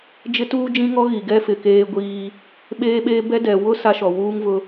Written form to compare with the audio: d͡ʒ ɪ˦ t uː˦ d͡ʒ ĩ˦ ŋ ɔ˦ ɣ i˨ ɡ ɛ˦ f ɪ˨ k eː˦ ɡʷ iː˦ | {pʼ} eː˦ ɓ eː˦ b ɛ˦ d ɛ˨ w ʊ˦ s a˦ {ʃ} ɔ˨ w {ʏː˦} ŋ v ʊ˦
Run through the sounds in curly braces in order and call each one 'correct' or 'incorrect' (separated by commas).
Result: incorrect, correct, incorrect